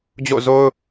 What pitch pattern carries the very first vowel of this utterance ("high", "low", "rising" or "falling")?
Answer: falling